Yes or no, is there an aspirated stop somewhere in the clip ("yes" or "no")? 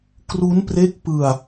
no